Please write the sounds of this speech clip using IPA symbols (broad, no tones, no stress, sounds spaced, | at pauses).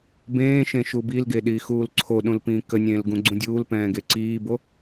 b ẽː ʃ ẽ ʃ u b i l ɡ e ɗ iː x uː l ǀʰ o ɗ ũ l p ĩː k ə nʲ ẽː l ɡ ũ ɡ͡ǀ ũ dʲ uː l p ɛ̃ː ɡ e ǀ iː b o